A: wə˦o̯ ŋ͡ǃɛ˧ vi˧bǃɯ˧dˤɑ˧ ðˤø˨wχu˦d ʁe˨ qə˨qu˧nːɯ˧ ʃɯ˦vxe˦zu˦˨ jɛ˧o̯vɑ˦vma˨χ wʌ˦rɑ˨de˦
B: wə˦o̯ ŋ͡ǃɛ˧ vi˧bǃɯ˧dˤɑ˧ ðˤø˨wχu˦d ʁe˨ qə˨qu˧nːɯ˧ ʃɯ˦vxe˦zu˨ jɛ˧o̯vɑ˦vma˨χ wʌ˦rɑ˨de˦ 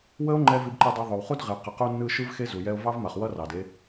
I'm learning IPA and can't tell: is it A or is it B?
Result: B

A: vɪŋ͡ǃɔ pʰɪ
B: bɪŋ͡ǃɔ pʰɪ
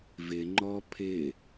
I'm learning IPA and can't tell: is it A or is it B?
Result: A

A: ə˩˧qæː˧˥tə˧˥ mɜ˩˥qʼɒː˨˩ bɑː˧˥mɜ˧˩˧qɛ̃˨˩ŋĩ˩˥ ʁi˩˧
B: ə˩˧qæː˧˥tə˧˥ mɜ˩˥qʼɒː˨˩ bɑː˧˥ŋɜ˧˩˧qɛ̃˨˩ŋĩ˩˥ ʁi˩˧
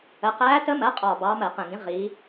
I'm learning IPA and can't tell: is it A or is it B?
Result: A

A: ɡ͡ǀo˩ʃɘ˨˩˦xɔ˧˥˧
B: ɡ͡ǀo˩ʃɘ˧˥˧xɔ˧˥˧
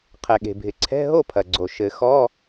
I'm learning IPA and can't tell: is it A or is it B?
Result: A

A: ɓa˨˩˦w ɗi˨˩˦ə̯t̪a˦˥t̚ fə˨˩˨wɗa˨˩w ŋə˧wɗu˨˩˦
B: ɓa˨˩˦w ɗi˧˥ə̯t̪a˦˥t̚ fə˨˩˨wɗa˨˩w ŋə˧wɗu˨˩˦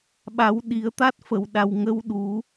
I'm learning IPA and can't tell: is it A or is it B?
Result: A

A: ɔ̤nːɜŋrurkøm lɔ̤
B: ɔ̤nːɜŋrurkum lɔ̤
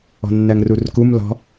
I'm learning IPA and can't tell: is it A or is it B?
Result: B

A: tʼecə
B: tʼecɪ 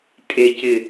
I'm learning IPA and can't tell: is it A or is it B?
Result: B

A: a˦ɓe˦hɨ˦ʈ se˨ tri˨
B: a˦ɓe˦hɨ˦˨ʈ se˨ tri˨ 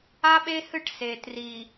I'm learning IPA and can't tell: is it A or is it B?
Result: B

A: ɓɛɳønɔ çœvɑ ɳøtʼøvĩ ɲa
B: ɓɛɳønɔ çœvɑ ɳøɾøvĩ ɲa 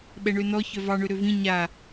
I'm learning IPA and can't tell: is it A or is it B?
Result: B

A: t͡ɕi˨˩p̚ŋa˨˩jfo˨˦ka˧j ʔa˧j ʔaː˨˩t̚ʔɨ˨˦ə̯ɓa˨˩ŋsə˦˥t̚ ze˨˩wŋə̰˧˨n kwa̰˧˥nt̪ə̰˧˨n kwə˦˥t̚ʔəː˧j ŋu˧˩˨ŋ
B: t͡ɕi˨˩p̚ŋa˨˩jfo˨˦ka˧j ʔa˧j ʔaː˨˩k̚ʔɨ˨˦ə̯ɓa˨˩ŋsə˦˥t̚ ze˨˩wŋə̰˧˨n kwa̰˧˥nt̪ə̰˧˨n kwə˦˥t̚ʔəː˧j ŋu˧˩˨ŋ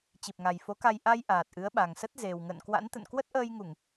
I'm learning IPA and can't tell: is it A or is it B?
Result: A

